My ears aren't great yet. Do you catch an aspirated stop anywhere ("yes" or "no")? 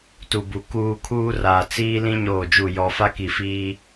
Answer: yes